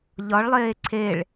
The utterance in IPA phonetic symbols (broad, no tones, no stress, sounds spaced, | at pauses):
ʎ ɒ ɭ lˠ eː ǀʰ e ɭ